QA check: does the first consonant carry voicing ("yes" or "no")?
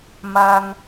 yes